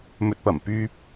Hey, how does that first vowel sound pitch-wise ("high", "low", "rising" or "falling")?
low